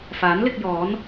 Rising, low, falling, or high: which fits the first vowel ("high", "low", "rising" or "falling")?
rising